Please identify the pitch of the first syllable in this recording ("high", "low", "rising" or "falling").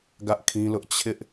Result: high